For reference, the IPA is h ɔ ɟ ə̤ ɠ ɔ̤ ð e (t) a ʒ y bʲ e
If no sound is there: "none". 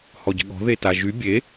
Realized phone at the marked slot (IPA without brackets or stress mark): t